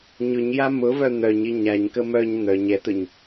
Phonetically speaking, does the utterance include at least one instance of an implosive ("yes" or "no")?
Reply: no